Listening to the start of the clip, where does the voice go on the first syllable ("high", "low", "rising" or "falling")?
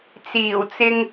low